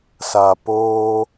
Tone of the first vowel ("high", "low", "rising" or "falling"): low